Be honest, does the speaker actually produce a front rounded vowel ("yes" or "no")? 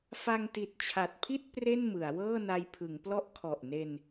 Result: no